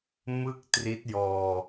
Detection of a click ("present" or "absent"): absent